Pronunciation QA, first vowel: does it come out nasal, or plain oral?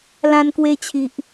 nasal